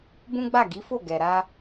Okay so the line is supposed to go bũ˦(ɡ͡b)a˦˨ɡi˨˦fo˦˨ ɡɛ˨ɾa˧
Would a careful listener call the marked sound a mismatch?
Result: no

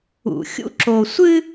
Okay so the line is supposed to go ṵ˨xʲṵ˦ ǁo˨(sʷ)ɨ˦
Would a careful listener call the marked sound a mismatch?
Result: no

